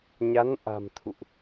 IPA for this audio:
ɲ a˨˦ n ʔ a̤˨˩ m t̪ʰ ṵ˧˨ ʔ

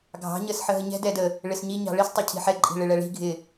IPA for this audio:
ɡʱ ɑ̤ ɲ ə s ħ ə ɦ ə ɲ ɛ̤ d ɛ d ə | ɭ ɪ s ɲ i ɲ ɑ̤ ɭ i s tˤ i cʰ i̤ ħ ɛ ǃʼ i̤ ɭ ɪ ɭ ɛ ɭ i̤ ɡʱ ɪ

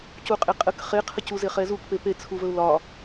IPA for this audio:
c u qʼ e qʼ ə k χ e qʰ ə c u z e χ ɛ z u k p e p e t͡sʰ u v ə ʊ̯ l ɒ

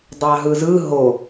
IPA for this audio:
dˤ ɑ ɦ ɯ z ɯ ɦ o

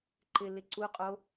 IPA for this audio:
ǃ ɪ l ɪ ǀ u qʼ o

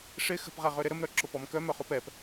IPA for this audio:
ʂ ɪ x ə̤ p ʁ a ʁ ø ɾ ɪ ɾ ə m ɾ œ ǁ ʊ p ɔ m k œ m œ χ u p ɛ p

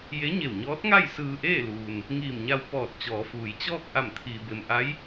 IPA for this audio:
j e˧˥ ɲ e˧˩ w ɲ ɔː˧˥ t̚ ŋ a˥˨ j s ɯː˧ ʔ eː˥˨ l uː˩ n | ŋ iː˧˩ m ɲ a˧ w p ɔː˧˩ t̚ t͡ɕ ɔː˩˧ f uː˩ j t͡ɕ ɔː˥˨ k̚ ʔ a˧˩ m t̪ʰ iː˩ b e˩ m ʔ a˧˥ j

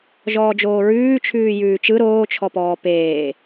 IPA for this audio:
ʒ ɔː d͡ʒ oː ɹ ʉː t͡ʃʰ ʉː j ʉː t͡ʃ ɯ ɾ oː t͡ʃʰ ɔ p ɔː p eː

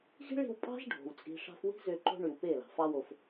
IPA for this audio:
ʑ i̤˦ ɭ i̤˧ w pʼ ɑ̤˦ z ɖʱ o̤˨ w t͡sʼ i̤˧ ʂ ɑ̤˧ f w i̤˦ z ø˧ ǃ o̤˦ ɳ y˨ w p e˦˨ l ɑ̤˨ f ɑ˦ w o˧ f

